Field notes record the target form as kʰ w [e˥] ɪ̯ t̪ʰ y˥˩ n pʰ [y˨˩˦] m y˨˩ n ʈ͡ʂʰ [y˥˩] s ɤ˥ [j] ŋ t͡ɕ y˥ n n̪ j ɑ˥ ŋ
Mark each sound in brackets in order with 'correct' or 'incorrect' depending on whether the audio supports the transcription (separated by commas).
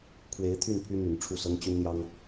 incorrect, incorrect, incorrect, incorrect